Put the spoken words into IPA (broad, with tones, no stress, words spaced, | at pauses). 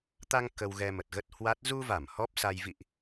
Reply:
t̪a˧ŋ kə˧wɣɛ˧mə˨˩t̚ɣə˦˥t̚ hwa˦˥t̚ zu˧va˧˩m hɔ˦˥p̚sa˧j vḭ˧˨ʔ